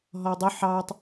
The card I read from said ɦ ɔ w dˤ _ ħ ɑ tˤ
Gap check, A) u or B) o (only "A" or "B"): B